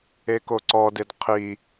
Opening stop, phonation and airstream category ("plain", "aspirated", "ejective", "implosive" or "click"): plain